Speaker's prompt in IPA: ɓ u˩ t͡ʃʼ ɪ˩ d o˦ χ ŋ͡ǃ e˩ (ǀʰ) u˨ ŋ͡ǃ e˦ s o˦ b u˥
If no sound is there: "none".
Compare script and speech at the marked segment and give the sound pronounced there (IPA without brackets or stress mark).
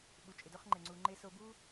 ŋ͡ǀ